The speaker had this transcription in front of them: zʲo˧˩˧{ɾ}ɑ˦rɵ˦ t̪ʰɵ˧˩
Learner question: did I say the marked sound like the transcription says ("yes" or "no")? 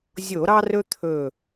yes